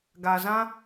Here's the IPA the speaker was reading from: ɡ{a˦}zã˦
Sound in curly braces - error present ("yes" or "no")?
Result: yes